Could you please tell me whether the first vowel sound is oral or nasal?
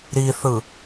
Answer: oral